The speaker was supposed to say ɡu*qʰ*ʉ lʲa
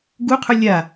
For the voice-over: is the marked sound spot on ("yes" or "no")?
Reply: yes